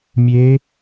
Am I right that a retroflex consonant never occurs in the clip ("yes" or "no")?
yes